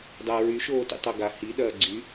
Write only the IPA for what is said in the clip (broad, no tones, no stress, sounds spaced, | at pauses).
dˤ ɤ ɹ y ʃ oː t ḭ tˤ ɐ ɡ a h i ɗ ɐː ɡ͡ǀ y